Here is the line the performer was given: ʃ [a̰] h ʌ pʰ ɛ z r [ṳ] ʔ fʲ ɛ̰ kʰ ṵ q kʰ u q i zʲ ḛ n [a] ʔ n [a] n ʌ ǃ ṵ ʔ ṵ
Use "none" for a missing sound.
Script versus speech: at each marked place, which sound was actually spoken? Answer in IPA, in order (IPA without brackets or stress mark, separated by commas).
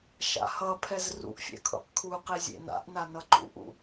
a̰, ṵ, a̰, a